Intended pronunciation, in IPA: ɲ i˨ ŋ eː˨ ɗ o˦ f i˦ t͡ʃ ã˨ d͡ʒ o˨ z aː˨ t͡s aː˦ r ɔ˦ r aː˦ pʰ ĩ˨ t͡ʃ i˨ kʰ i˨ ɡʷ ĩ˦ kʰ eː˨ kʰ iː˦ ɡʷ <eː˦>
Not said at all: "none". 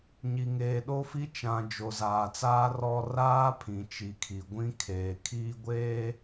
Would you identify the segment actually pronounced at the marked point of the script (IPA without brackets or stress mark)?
eː˦